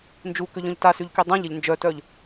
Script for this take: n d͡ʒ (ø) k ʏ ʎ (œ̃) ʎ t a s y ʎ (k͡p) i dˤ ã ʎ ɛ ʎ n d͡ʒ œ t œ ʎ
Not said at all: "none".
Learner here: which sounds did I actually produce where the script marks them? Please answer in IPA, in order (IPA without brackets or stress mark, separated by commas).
u, œ̃, k